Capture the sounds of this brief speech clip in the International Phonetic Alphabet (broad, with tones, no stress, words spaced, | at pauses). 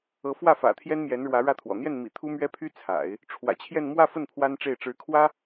ɤ˧˥fwä˥˩ fä̰˨˩t̪ʰjɛ˥nmjɛ˧˥nɻwä˧˥ ɻä˥˩t̪ʰwɔ̰˨˩ n̪jɛ˥˩nmḭ˨˩ t̪ʰu˥mɥɛ˥pʰy˥ t͡sʰa̰˨˩˦ɪ̯ | ʈ͡ʂʰwä̰˨˩t͡ɕʰjɛ˥˧n mwä˥˧fə˥˩n pʰwa˥nʈ͡ʂe˥˩ɪ̯ ʈ͡ʂɻ̩˧˥kʰwä˥